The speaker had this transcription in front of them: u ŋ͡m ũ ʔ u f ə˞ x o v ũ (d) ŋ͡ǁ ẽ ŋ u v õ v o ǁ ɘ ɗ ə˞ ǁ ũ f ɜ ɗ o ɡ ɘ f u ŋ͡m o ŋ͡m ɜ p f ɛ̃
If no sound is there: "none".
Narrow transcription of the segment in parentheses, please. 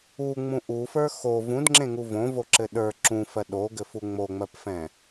d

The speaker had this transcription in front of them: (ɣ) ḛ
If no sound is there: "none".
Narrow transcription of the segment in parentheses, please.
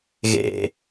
ɣ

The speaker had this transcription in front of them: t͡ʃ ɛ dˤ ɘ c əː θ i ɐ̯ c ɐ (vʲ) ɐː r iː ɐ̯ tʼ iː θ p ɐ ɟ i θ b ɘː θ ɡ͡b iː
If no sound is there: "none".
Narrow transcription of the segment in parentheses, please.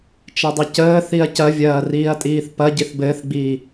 vʲ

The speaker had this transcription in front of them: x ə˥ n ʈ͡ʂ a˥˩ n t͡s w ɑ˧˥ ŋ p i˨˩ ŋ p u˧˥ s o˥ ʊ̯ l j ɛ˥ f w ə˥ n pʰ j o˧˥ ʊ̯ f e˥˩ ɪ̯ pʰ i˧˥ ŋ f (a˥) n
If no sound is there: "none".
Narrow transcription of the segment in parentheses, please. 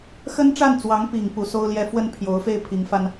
a˥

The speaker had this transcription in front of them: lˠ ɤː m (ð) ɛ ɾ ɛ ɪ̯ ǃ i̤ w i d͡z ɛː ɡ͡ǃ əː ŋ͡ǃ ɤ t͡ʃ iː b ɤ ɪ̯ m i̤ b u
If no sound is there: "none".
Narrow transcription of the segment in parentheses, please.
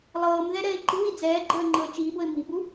ð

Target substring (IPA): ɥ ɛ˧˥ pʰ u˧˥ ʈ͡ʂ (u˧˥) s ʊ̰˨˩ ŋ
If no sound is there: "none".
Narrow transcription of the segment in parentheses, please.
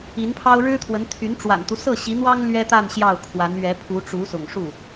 u˧˥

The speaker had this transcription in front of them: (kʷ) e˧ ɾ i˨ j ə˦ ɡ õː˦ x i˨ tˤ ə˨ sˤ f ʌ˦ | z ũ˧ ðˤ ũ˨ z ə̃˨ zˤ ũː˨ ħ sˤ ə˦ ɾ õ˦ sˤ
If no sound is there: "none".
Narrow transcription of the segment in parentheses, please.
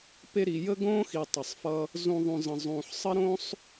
p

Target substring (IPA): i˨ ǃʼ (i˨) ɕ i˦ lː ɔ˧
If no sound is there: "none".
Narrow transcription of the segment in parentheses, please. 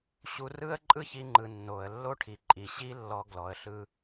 i˨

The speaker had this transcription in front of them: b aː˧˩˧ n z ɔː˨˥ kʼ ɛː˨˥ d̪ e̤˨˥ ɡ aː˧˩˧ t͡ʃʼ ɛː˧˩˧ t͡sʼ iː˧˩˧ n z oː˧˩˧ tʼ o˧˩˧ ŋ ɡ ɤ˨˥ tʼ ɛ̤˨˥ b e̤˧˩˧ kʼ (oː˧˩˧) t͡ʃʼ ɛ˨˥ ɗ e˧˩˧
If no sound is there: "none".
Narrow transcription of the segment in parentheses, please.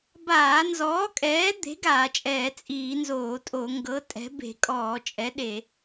ɔː˧˩˧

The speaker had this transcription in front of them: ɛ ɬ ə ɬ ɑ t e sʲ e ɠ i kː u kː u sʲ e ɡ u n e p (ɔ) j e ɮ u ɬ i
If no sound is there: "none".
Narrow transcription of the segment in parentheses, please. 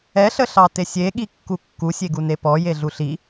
ɔ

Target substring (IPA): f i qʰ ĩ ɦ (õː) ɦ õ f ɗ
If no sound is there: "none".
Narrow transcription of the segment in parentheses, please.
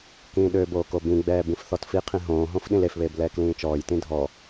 õː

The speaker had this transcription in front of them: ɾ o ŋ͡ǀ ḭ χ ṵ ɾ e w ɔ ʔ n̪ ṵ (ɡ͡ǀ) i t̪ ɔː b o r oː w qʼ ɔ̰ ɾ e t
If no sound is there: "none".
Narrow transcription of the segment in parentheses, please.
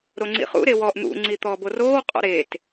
ŋ͡ǀ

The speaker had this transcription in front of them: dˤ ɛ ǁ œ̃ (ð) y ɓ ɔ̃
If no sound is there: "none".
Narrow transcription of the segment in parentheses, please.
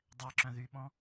ð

